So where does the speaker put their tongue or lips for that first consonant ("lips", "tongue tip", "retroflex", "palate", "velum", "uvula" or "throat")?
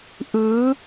throat